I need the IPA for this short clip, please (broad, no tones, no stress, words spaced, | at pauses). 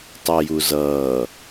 tˤəːjuzʌː